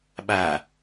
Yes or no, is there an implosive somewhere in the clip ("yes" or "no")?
yes